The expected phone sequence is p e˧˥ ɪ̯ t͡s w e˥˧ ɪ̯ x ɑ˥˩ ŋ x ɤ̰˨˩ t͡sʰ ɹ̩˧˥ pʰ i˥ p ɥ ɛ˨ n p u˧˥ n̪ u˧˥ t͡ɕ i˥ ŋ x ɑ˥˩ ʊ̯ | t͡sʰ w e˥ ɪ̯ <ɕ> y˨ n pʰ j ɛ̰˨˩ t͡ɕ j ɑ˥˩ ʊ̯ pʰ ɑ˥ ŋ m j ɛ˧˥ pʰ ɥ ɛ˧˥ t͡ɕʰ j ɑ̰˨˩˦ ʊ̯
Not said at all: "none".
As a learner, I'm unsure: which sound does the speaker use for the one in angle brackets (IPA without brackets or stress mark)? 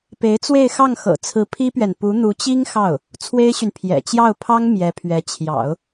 ɕ